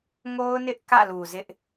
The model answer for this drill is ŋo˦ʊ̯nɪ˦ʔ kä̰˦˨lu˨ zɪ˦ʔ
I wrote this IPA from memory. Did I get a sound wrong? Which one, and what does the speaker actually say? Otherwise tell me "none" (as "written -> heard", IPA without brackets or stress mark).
none